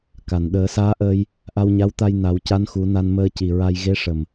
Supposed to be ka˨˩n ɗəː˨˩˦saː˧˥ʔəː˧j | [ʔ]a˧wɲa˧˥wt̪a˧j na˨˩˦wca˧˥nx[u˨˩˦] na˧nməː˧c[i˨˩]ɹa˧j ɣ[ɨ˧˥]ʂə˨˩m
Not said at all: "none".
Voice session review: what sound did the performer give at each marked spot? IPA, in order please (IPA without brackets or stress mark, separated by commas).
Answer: ʔ, u˨˩˦, i˨˩, e˧˥